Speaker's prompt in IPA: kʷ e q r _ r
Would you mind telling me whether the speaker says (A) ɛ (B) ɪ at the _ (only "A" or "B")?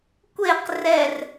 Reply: A